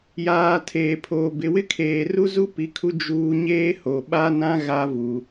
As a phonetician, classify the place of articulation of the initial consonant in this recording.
palatal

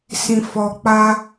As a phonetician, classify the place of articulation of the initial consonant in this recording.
alveolar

